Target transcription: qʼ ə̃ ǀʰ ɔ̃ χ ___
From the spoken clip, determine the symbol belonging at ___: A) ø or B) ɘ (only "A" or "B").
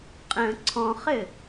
B